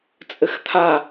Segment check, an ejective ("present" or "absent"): present